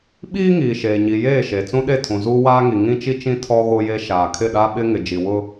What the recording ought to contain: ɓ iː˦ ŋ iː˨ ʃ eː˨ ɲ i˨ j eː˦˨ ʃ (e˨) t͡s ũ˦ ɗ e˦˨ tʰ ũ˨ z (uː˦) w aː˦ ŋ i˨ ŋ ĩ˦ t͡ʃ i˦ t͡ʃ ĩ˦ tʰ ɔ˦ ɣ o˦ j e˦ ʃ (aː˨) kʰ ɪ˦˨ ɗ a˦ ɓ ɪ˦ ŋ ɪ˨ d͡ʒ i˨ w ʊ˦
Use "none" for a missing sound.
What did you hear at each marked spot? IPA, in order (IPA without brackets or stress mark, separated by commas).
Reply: e˨, uː˦, aː˨